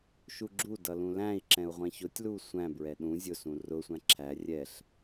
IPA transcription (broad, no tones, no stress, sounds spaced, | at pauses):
ʃ u ɡ͡ǁ u d ʌ l ũ l æ̃ i̯ ǁ ɛ̃ u̯ ʁʷ ɛ̃ ç ʊ tʲ l u sʷ æ̃ b ɹ ɛ ɗ ũ zʲ ʊ s ũ r ʊ sʷ æ̃ ǁʰ æ rʲ ɛ ɬ